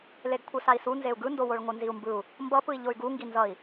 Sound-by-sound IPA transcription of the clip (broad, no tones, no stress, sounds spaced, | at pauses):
l e ɡ kʷʰ ɯ s a i̯ s u n z e u̯ ɡ ɯ n d o w o ɭ ŋʷ ɯ n z i u̯ m b ɯ u̯ | m b ʌ p ɯ i̯ ʎ o y̯ ɡ u ŋ ɡ i n z ʌ i̯